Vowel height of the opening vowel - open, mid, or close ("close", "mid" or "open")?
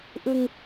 close